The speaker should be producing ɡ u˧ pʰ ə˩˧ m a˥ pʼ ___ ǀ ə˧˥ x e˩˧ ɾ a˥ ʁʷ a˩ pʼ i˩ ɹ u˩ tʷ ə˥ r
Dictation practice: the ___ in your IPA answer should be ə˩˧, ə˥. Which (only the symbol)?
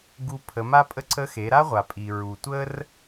ə˥